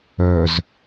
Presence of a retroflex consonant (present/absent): absent